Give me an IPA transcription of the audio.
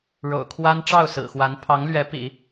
ɻo̰˨˩ʊ̯kʰwa˥n ʈ͡ʂɑ˥˩ʊ̯sɹ̩˨˩xwa˧˥n pʰɑ˧˥ŋlɥɛ˧˥pḭ˨˩˦

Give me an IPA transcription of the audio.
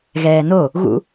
ɣɛːno | ɣṵ

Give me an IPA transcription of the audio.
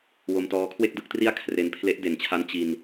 wo˧mtɔː˦˥kʰwe˥˩k̚ dɯ˥˩k̚tri˥˩a̯kʰre˧npʰle˦˥ʔ de˨˩nt͡ɕʰa˦˥n t͡ɕi˧n

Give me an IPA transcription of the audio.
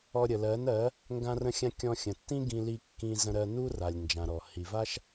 ɔ˧ ɾʲə˨lɜ˨˦nɜ˨˦ | ŋɡã˦rə̃˦xʲã˦ kʲɔ̃˧xʲə̃˨tːĩ˦ ɡĩ˦li˦kːĩ˦ zə̃˧ɾɜ˧nu˦ ra˨lʲ nd͡ʒã˨ɾɔ˨ hi˨va˦ʃ

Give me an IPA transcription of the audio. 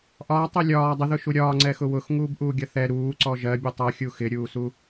ʔɒːtˤɛ lʲɒː dˤəðʊʃu ɾʲɒːŋ͡ǀɛxʊ wʊxŋuːbʔuːɡʲʌ θɛ ɾuːǀɔ ʒɜbʲɔtˤ ʌxʲu xɪɾʲuːsu

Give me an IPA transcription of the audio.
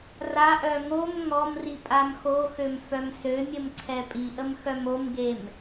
raʔœ ŋom ŋɔmri pʼamxoxøm fœmsømʲəm ǀʰɛpʼiʔəm xœmomɡem

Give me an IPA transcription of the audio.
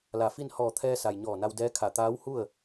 la˧˩fi˥˨n hɔː˧˩t̪ʰɛː˧sa˩j ɲɔː˧˩na˧wdɛː˧˥kʰa˧˩ t̪aː˧˥whu˥˨ə̯

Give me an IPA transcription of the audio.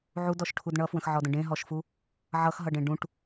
ʕudɔʃʈʰud ɳʌfwə̃xʕɔdə̃ ɖẽɦɔʃfu | ʕʌxɦʌɖẽ ɖũʈ

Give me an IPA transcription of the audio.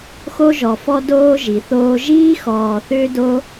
xo˦ʒɔ˨fɔ˦ doː˦ ʒi˨θoː˦ ʒiː˦xɔː˨ θʏː˦do˦

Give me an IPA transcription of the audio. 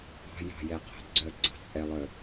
ɑ̤jɑ̤jɛqʰɛ̤ ɡ͡ǀœɡ͡ǀɑ̤t͡sʼɛlˠœ

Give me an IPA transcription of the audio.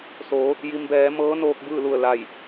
so˩˧ | ji˩mbɛː˩˧ mɤː˧˥noː˧k̚ bɯː˥˨lu˧˩ə̯la˧˩j

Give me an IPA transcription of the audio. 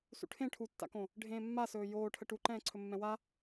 sṵʈʰẽ ʈʰutːa̰kõ | ɖʱẽːmːasɵː joːʈʰə ʈuǃɛ̃ː ǀʰɵmːɛ̃wa

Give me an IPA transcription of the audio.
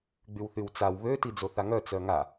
ɡ͡bywθywt͡saw βø tid͡zoθaŋœ t͡sœŋa

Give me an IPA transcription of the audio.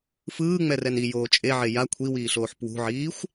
fɯːŋ͡mɛrɛn ijoː t͡ʃʼeʕe ja kʷʰiwiːɬoːħ pwṳʕiːxʷ

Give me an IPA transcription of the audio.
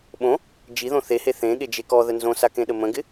ɓõ | d͡ʒiðõ θehe θẽ ɠed͡ʒekɔðə nzõsa kẽɗəmə̃ɡɪ

